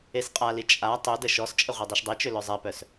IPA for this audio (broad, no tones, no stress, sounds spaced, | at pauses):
e s qʼ a l i t͡ʃʼ a tˤ ø d ə ʃ ɔ s t͡ʃʼ ə ʁʷ i dˤ y ʃ dˤ e t͡ʃ ø l œ zˤ ɛ p œ s